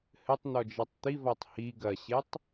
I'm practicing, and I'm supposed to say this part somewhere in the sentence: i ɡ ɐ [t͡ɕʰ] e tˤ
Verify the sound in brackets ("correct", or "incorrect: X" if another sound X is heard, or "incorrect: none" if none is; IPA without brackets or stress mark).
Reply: incorrect: ɕ